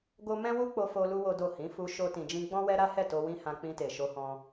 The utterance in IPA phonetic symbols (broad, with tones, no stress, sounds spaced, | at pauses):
ɡ o˦ m ɛ̃˦ w u˦ k͡p o˧ f o˦ l u˦ w o˦ d o˦˨ h ĩ˨˦ f u˧ ʃ o˦ t ĩ˧ d͡ʒ ĩ˦ ɡ͡b ɔ̃˦ w ɛ˦ ɾ a˦ h ɛ˦˨ t o˧ w ĩ˦ h ã˧ k͡p ĩ˧ t e˨ ʃ o˧ h ɔ̃˦